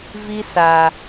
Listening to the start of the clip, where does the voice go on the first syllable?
high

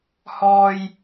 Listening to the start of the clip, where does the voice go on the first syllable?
low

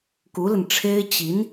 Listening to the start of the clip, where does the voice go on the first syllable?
rising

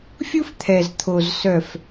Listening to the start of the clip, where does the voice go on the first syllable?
high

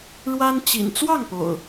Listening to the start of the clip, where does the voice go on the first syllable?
high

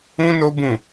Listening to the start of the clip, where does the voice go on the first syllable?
high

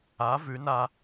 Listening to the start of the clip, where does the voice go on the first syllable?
rising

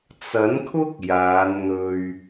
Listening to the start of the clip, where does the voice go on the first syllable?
rising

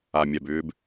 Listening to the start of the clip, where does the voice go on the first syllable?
low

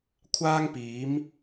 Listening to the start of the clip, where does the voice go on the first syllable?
high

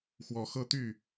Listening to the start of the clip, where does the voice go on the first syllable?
rising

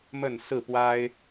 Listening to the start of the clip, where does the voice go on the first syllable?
falling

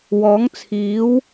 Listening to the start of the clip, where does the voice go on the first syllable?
rising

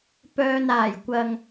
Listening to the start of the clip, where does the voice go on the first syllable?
low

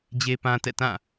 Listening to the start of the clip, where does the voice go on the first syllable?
high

